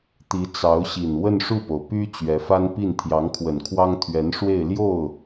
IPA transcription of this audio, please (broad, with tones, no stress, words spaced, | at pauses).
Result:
t̪i˧˥t͡sɑ˧˥ʊ̯ɕi˨˩n wə˥˧nʂu˥˩po˩ʊ̯ py˥ t͡ɕɥɛ˧˥fa˥npi˥˩n t̪ʰjɑ˧˥ŋkʰwə˨˩nkʰwɑ˥ŋ t̪ʰɥɛ˧˥nʂwe˥˧ɪ̯ljo˥˩ʊ̯